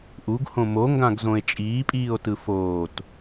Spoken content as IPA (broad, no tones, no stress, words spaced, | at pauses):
ʔuɡhõ moŋɡãɡzõe̯ t͡ʃʼiːpʼiːo̯tɯ foːt